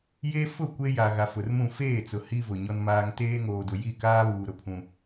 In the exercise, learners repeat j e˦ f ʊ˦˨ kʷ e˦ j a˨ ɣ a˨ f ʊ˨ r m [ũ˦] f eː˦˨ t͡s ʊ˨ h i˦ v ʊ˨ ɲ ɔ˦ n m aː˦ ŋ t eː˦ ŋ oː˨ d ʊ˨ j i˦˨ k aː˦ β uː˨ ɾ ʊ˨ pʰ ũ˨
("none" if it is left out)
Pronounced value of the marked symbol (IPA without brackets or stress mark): ũ˦˨